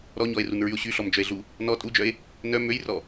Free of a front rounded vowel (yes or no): no